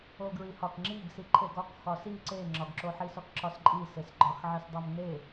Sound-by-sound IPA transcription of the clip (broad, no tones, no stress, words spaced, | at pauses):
oɡɹihɒk ŋ͡ǁiɡsi ǃʰeɡɒk xɒsi ǀeŋ͡ǁɒɡǁoħi sɒkǁɒsǃʼi sesɡ͡ǃɒxʕis dˤomne